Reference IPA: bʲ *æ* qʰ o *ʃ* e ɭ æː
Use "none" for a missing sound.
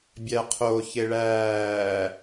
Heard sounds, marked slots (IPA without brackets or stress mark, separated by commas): æ, ç